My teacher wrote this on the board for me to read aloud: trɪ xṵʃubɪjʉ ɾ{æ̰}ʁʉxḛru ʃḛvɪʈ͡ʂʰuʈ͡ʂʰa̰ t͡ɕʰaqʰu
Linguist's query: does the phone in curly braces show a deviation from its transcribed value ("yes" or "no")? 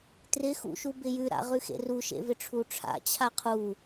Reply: yes